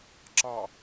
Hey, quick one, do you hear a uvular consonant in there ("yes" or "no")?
no